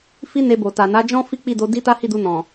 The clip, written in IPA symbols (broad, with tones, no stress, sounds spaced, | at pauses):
f i˦ n e˧ b o˨ t a˨ n a˨˦ d͡ʒ ɔ̃˦ f i˦ k͡p i˦˨ d o˧ d i˦ t a˦ h i˦˨ d u˧ n ɔ̃˨